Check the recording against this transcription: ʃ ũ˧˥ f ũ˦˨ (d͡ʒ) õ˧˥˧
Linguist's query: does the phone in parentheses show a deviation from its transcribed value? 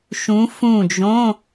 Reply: no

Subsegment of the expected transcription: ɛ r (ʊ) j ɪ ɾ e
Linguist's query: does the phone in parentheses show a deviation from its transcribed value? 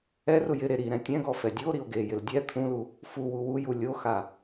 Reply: no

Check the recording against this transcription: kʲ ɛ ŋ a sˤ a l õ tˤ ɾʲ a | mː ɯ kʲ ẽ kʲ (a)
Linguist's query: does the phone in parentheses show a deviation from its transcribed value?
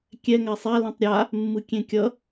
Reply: yes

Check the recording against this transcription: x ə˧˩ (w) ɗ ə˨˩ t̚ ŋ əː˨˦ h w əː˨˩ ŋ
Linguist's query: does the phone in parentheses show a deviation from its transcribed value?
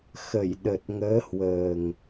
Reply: yes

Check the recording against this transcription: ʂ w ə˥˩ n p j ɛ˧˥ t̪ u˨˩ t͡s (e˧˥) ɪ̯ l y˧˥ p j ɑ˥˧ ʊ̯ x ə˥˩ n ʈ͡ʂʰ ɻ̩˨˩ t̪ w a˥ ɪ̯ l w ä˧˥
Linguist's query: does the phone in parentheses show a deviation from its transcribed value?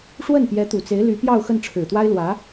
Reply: no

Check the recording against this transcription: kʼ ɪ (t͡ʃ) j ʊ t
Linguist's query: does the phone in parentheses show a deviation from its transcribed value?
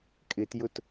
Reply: yes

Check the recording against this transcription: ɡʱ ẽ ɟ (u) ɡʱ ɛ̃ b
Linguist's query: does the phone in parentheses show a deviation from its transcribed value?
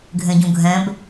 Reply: yes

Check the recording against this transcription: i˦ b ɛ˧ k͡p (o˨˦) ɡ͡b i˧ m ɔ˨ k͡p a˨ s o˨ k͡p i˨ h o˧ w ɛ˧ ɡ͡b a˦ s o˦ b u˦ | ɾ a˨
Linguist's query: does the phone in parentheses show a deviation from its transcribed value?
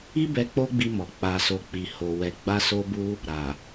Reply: yes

